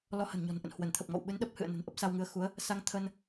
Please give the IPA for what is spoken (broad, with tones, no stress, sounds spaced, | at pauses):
l ɔ˧ h ə̤˨˩ n ɲ ɔ̤˨˩ n ʔ ə̰˧˨ n h w ə˧˩ n t̪ʰ ə˨˩ p̚ ŋ ɔ̰˧˨ w ɓ ɨ˨˦ n ɗ ə˦˥ p̚ h ɨ̰˧˨ ə̯ n ə̤˨˩ n ʔ ə˦˥ p̚ s a˧ w ŋ ɨ˨˦ ə̯ x u˨˦ ə̯ | s a˧ ŋ t̪ʰ ə˧ n